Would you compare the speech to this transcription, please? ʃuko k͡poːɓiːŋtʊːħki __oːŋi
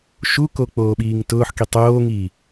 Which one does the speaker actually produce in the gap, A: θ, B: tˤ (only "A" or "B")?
B